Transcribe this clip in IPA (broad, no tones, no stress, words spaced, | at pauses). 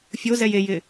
fʲozɛj ejɪ